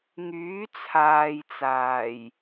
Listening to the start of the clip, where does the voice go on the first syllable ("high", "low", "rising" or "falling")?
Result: rising